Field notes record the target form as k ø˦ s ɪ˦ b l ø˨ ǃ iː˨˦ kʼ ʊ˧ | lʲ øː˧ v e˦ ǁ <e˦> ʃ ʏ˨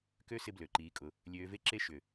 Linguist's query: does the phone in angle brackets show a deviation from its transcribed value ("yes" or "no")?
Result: no